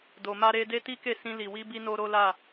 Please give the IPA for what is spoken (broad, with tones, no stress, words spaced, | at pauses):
do˧ma˦ɾe˦ de˦ti˦ke˦˨sĩ˧ li˨wi˧bi˧ no˦ɾo˦la˦˨